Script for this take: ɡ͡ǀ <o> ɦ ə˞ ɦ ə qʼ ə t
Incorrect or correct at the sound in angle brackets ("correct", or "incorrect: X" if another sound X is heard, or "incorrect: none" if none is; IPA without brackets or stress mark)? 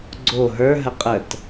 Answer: correct